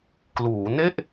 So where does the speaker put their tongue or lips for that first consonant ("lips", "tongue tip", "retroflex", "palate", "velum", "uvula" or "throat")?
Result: velum